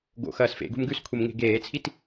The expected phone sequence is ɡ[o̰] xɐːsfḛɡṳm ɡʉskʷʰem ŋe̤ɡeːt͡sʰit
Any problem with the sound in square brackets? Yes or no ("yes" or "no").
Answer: no